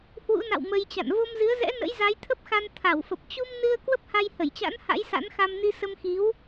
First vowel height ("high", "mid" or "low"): high